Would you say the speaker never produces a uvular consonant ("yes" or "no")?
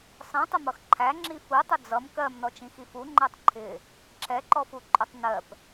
yes